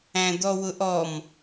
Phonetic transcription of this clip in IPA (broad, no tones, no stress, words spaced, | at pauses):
æ̃d̪ɔwʊʔɔm